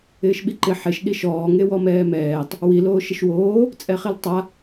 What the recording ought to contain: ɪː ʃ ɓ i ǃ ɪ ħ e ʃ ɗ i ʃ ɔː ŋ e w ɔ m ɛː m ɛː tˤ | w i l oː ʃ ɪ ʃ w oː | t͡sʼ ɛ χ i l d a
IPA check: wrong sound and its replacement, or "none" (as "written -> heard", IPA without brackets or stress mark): d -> tˤ